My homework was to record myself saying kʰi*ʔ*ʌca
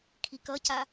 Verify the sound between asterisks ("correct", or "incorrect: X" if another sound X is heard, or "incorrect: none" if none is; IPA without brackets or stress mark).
incorrect: k